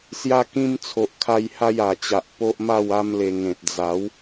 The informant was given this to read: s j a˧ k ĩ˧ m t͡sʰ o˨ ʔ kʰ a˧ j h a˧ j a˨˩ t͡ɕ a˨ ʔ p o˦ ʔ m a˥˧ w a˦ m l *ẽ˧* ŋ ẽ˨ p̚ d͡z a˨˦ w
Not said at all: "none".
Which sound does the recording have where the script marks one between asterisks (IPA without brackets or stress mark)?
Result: e˧